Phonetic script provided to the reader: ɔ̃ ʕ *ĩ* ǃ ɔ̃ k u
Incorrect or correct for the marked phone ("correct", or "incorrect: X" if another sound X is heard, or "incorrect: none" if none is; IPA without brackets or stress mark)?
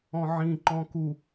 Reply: correct